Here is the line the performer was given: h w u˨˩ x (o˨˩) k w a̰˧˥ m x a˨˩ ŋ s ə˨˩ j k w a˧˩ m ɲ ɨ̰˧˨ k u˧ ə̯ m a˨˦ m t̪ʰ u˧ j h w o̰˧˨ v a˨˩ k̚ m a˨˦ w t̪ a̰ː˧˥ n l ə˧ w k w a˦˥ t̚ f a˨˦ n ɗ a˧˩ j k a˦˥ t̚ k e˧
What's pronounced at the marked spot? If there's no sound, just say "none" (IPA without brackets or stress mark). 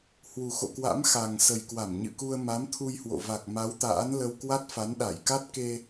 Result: o̰˧˨